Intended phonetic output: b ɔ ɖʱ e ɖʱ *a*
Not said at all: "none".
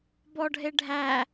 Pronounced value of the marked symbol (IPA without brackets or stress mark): æ